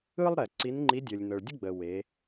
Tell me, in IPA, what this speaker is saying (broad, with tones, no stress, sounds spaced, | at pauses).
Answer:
ɯ˥ lˠ ɾ ɛ˩ ǀ i˧˥ n ŋ͡ǃ i˧˥ dʲ ɤ˩ lʲ n ɤ˩ ɭ dʲ ə˥ ɡ͡b ə˩ w e˩˧